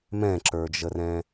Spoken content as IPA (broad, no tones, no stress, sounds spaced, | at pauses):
m ɛ̃ ǁ ə˞ d͡ʒ ə r ɛ̃